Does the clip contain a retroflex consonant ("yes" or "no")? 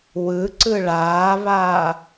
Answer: yes